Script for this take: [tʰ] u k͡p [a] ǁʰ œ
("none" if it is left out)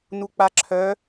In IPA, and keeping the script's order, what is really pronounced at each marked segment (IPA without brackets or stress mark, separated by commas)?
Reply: n, a